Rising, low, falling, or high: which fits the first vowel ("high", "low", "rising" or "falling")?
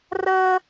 high